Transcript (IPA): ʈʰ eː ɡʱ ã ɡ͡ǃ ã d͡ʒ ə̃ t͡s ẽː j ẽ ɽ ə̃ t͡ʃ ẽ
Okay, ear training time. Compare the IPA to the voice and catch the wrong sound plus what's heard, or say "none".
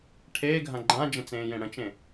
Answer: none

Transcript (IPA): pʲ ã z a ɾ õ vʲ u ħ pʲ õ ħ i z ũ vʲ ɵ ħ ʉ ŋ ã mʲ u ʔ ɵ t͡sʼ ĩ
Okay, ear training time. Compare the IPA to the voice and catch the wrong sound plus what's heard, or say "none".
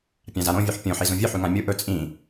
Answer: none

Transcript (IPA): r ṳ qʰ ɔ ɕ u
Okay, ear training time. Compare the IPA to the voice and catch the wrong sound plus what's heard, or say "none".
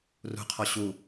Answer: none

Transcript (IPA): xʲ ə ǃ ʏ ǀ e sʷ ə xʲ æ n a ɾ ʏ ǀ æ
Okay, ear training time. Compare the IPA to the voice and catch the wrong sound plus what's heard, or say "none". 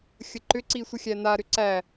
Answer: e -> i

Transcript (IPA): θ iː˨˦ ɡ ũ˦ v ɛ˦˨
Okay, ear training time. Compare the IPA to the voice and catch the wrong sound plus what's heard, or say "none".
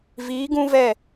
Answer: θ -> v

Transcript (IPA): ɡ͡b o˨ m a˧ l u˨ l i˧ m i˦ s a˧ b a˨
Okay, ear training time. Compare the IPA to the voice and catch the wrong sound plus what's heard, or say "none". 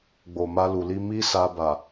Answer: none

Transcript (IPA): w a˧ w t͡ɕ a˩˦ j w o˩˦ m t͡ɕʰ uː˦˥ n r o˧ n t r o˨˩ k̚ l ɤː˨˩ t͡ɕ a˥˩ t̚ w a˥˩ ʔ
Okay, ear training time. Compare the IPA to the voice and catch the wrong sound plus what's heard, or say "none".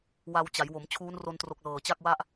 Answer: t̚ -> k̚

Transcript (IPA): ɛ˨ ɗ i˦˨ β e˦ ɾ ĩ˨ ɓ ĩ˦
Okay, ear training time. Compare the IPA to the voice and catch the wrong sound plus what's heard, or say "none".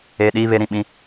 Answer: ɛ˨ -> e˨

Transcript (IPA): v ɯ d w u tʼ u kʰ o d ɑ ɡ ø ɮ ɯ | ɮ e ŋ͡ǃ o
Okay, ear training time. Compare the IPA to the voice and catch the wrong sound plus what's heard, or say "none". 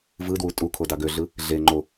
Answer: none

